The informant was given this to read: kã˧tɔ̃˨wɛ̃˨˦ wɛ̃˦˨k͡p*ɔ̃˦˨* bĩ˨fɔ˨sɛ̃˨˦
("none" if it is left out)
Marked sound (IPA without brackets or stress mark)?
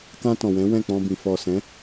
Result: ɔ̃˧